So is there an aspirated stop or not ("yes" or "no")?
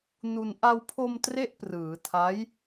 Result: yes